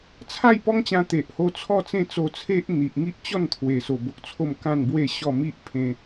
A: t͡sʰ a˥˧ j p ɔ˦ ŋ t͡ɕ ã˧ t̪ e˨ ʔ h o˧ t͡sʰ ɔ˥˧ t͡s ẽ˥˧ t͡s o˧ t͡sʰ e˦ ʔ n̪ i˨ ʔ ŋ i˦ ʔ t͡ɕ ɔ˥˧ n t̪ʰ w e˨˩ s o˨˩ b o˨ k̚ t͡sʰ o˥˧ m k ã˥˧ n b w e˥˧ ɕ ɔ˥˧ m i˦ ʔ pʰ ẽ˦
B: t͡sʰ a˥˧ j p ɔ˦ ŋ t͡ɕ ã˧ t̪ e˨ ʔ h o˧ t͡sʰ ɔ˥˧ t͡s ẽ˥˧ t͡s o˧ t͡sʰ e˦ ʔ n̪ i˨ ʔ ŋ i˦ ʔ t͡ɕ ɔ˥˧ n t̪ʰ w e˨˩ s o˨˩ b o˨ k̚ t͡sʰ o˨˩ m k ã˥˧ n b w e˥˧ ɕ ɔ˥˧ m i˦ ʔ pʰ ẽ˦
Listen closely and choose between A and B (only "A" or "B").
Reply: A